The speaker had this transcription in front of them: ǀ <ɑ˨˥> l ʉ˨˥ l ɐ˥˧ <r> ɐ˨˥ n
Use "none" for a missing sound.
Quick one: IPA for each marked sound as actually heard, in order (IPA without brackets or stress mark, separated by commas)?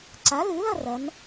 a˨˥, r